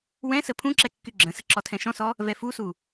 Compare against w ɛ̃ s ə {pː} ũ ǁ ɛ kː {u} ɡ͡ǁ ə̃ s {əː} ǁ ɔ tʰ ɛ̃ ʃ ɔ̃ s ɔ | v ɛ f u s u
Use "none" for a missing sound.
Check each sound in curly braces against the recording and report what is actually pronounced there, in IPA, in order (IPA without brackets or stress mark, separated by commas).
pʰ, y, ə